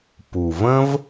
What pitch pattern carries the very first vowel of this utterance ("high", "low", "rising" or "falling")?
low